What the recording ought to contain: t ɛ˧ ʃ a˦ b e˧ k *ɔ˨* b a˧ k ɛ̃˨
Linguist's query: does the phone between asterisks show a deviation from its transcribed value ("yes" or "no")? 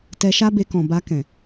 yes